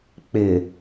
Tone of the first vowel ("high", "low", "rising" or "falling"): low